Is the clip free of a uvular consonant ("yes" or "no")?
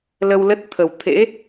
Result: yes